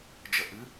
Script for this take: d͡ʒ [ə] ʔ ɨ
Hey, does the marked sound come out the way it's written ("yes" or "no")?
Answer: yes